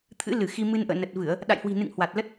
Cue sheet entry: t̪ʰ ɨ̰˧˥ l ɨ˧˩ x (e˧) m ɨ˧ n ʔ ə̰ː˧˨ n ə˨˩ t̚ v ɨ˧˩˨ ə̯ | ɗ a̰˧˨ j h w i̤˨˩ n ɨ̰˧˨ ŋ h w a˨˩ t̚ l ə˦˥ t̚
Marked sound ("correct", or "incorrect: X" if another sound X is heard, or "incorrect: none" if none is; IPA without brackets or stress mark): incorrect: i˧